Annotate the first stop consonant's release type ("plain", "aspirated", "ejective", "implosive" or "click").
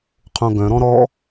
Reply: aspirated